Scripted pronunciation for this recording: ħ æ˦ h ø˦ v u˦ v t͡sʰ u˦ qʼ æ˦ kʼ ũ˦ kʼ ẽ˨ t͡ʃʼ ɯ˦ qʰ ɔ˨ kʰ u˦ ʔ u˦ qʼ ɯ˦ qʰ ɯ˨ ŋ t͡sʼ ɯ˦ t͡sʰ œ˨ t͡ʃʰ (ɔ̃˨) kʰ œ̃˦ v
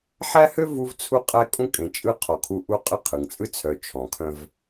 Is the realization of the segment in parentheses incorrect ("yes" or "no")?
no